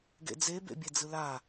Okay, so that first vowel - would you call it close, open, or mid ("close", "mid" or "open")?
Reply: mid